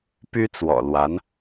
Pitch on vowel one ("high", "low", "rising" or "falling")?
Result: high